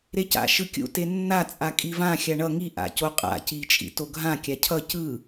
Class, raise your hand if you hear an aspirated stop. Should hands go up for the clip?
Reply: yes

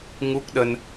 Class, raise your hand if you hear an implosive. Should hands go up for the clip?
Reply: yes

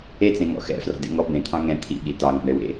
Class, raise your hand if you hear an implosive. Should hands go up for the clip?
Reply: yes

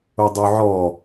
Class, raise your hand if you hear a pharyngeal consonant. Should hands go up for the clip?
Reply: yes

